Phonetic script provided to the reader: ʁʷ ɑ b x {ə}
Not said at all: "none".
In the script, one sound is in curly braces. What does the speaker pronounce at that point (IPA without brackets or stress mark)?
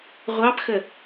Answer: ə